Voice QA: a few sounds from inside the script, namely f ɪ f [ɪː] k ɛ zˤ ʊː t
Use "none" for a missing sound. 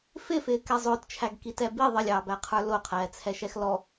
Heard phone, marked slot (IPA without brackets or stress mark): ɪː